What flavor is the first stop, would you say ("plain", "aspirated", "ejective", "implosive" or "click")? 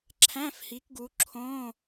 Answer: click